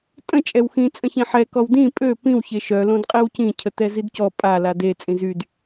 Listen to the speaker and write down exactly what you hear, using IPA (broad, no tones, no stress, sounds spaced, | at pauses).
tʼ ə̃ t͡ʃʼ ɛ w x ĩ t͡sʼ ə̃ ç ĩ ħ ɛ k ɔ w d ĩ pʼ ø p ĩ w ç e ʃ œ l õ d qʼ i w c ĩ cʰ ə t ɛ z i d c ɔ pʼ a l a d e t͡sʼ ĩ z y d